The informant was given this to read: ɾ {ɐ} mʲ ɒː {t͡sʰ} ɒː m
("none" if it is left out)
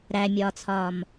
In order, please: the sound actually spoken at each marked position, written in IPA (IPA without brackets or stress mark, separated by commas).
æ, t͡sʰ